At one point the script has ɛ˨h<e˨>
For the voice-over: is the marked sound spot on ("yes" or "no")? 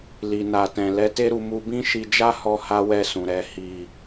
no